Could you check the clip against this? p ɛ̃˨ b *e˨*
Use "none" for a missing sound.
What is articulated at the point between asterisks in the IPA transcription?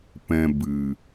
ɨ˨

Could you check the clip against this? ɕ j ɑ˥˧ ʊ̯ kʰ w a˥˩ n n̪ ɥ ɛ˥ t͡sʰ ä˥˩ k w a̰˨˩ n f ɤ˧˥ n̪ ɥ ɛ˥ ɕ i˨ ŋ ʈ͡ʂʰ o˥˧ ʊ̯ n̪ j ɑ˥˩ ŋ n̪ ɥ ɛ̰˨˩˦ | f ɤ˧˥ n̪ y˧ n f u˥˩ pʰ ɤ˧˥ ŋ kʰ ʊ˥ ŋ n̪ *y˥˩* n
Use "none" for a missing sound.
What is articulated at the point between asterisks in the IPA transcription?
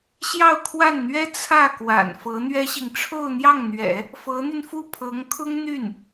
y˥˩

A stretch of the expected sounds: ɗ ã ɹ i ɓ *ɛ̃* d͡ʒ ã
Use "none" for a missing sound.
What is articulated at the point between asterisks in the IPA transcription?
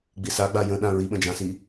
ə̃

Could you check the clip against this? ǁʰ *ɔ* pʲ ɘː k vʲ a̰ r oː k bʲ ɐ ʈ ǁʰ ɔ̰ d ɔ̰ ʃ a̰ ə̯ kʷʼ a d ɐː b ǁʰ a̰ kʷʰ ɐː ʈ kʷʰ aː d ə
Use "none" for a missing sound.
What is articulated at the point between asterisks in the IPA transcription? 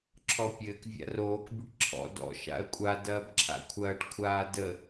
ɔ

